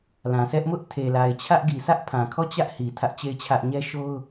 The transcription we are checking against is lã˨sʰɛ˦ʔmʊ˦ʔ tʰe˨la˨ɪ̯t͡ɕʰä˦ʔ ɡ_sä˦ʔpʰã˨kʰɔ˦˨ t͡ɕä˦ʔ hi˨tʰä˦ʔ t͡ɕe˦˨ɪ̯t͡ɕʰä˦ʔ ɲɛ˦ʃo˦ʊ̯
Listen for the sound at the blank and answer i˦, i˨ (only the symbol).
i˨